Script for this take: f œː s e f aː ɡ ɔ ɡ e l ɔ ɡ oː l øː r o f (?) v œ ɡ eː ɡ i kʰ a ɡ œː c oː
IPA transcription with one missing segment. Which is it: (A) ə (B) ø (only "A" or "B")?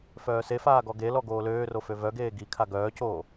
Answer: B